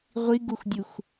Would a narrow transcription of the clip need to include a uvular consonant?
yes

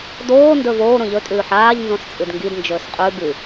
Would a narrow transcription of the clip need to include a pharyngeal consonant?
yes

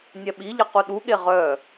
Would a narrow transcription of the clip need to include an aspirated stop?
no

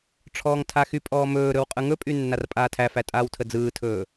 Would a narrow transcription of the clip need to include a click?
no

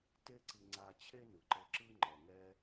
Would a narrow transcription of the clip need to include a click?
yes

